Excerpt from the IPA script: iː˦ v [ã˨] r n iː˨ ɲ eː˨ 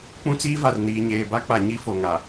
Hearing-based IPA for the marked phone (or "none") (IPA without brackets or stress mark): a˨